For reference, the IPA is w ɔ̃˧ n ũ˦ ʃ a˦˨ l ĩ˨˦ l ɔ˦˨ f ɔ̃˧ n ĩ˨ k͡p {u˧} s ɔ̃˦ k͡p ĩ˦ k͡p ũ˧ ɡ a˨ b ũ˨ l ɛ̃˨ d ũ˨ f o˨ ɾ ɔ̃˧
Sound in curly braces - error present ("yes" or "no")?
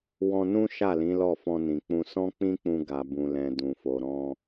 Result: yes